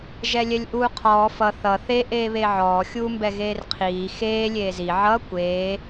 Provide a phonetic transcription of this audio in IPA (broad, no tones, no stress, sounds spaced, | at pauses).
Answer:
ʒ ɛ lʲ ɛ lʲ ʔ uː qʰ ɔː f ʌ θ ʌ θ e ʔ eː β e ʕ ɔː xʲ uː m b ɛ ɣ eː r qʰ iː x eː lʲ eː z i ʕ ʌ kʷ eː